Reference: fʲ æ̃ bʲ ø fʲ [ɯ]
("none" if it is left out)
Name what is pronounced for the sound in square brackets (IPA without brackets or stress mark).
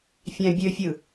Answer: ɯ